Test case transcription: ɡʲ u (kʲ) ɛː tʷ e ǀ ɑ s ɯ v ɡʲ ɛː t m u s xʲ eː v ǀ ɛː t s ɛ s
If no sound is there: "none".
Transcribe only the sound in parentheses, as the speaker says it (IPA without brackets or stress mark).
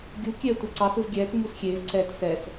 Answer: kʲ